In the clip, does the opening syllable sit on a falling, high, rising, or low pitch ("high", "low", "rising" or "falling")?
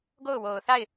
falling